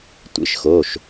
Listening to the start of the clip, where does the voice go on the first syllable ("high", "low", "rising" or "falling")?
rising